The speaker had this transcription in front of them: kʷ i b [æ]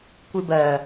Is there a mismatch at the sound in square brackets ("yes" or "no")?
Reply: yes